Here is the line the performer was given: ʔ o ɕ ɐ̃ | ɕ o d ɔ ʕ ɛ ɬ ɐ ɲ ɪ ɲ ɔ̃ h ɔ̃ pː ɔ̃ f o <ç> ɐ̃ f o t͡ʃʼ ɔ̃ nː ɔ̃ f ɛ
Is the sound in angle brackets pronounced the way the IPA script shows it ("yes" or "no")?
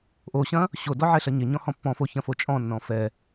yes